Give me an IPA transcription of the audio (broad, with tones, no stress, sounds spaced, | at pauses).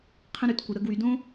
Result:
qʰ ə̃˦ ɾ ʉ˨˦ t kʷ ə˧ ɾ ə˦ ɡ w y˧ d õ˦